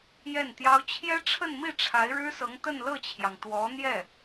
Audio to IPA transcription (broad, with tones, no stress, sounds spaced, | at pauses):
j ɛ˥˩ n t̪ j ɑ˥ ʊ̯ t͡ɕʰ j ɛ˥ ʈ͡ʂʰ ə˥˧ n m i˥˩ ʈ͡ʂʰ a˧˥ ɪ̯ ɻ ɻ̩˥ s ɤ˧˥ ŋ t̪ ə˥˧ n l ɤ˥˩ t͡ɕʰ j ɑ˩ ŋ t̪ w ɔ˧˥ n̪ j ɛ˥˩